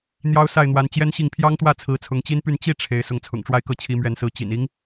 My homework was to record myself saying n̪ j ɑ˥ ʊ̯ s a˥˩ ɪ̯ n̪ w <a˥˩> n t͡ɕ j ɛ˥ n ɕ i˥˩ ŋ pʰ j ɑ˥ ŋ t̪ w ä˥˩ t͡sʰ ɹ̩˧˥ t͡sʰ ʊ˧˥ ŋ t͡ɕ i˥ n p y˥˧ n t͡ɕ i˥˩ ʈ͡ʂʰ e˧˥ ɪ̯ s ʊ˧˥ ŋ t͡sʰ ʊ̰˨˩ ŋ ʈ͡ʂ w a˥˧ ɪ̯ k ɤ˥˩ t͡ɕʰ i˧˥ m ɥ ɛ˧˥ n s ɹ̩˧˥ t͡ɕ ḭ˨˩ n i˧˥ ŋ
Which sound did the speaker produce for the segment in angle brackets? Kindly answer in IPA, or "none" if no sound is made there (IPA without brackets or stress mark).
a˧˥